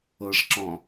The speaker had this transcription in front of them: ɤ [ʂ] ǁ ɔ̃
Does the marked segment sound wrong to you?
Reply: no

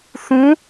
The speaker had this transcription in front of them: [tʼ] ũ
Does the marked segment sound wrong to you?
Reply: yes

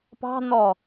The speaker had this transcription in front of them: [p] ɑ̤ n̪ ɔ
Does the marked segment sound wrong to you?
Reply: no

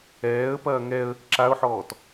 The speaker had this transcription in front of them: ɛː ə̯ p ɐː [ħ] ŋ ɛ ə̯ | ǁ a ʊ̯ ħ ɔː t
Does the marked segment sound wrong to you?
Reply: yes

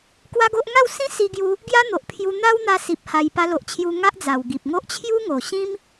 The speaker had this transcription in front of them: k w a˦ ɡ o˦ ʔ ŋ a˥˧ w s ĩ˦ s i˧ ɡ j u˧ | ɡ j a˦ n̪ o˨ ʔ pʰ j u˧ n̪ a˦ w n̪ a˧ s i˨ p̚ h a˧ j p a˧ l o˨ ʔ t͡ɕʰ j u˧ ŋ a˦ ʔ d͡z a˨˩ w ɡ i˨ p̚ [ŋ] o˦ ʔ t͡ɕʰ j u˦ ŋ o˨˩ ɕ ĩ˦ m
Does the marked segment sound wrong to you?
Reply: no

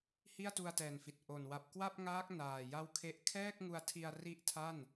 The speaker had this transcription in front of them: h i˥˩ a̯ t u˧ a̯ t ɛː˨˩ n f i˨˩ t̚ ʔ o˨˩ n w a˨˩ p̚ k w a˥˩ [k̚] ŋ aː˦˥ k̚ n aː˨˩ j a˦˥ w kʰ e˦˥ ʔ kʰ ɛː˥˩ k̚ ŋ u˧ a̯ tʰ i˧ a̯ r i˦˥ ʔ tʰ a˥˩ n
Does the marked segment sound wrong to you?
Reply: yes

